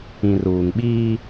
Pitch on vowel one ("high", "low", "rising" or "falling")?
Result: low